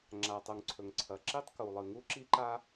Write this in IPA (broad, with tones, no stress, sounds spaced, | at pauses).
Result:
ŋ͡ǁ a˩ tˤ u˩ ŋ ǀʰ ɵ˩ ŋ ǀʰ ɐ˩ ǁ i˥ tˤ k u˩ lˠ ɨ˩ ŋ u˥ ǁ i˥ ǃ a˥